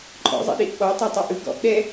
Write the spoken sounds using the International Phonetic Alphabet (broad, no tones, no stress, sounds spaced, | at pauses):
ǃʼ ɔ̰ zˤ ḭ ɗ i ʔ ɓ ɔ tˤ a tˤ ɯ ʔ ɯ ɡ ɔ̰ ʔ ɗ ɛ